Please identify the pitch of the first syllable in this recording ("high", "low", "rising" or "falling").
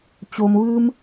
low